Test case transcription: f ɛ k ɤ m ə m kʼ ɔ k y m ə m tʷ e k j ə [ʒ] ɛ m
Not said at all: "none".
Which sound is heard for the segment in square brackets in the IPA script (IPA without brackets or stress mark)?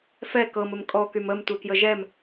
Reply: ʒ